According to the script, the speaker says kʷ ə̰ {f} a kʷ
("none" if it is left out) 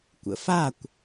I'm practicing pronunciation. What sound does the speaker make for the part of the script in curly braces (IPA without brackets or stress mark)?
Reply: f